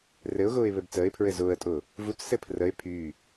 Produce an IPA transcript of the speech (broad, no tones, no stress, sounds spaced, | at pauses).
r ɘ ʊ̯ ɣ ʊː ɪ̯ β ɘ b t͡s əː ɪ̯ pʰ ɹ ɘ z ʊː ə̯ tʼ ʊː | v u t͡s s ɘ pʰ r ə ɪ̯ pʰ yː